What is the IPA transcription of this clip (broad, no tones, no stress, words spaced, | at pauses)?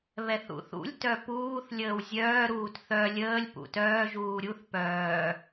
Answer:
βɛθṵθṵlʲ tœpuːθ lʲəːwzʲœː ɾuːtθœ lʲəːlʲ pṵtœː ʒuːɾʲuθ pœː